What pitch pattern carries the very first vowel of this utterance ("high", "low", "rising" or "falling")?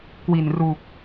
low